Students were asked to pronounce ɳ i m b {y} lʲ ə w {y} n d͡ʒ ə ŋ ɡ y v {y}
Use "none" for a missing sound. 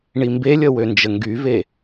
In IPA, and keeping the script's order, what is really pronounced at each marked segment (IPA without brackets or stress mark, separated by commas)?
e, ø, e